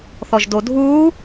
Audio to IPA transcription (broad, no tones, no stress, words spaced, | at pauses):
θɔʒdodʱuː